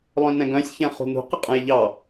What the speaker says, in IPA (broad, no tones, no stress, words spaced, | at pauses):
lˠœ̃nɛ̃ɡœ̃sʲ çɛ̃χṳnṳ qəqʼə̃jʎɑ